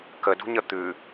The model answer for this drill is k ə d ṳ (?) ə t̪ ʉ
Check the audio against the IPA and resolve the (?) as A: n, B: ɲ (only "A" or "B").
B